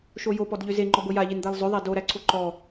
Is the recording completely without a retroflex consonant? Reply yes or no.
yes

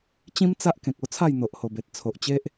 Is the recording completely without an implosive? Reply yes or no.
yes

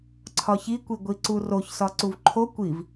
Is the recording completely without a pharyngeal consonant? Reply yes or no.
yes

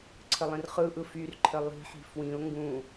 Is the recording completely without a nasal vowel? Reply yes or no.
no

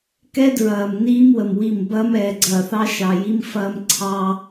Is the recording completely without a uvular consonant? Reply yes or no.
yes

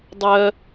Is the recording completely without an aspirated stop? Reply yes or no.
yes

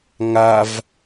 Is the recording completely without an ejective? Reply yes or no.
yes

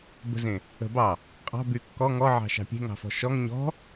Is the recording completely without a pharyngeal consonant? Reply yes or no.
no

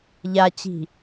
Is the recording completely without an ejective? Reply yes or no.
yes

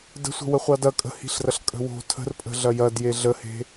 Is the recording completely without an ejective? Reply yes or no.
no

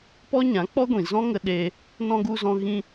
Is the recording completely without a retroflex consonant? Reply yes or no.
yes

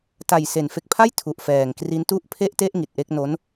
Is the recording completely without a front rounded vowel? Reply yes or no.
yes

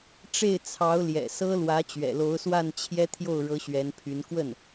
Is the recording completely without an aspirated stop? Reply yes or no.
no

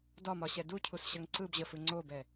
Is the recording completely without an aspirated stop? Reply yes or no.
no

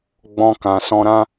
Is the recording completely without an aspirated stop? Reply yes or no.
yes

